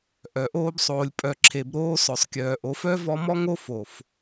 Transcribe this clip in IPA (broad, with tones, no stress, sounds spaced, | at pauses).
ʔ œ˨ ʔ oː˧ b sˤ oː˨ lʲ pʼ œ˨ ǁʰ e˨ b ɾ oː˧ s œ˨ sˤ kʲ œː˨ ʔ o˨˦ f œ˦ v ɔ˧ m ɔ˦ ŋ o˦ f o˨ f